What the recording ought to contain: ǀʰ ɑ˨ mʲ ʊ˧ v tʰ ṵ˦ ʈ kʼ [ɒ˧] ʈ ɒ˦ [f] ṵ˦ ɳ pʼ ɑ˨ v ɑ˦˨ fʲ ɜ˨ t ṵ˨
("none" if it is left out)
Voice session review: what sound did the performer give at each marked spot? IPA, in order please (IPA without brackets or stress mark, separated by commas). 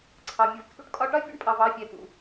ɒ˧, fʲ